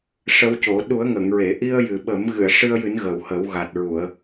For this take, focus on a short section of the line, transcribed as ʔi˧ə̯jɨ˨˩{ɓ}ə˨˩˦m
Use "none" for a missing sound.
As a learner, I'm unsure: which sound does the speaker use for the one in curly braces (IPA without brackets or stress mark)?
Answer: ɓ